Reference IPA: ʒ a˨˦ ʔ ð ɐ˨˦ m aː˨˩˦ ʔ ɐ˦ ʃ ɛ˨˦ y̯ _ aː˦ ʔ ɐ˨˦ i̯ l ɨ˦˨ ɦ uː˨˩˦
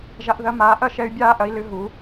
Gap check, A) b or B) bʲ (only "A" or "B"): B